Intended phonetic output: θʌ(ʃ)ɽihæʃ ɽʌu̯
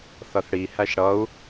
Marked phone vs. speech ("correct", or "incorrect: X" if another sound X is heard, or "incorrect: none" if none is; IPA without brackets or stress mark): incorrect: θ